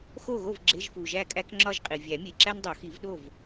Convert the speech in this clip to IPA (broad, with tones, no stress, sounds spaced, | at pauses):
x o˥˨ ɣ o˥˨ v ɡ͡ǁ e˧˥˧ ʒ f u˨ ʒ æ˥˨ kʼ æ˥ k ŋ͡ǁ ɒ˥˨ ʒ qʼ i˨ vʲ æ˨˩˦ mʲ e˨ ǁ æ˥ n dˤ o˨˩˦ x i˨˩˦ v ɗ o˥˨ v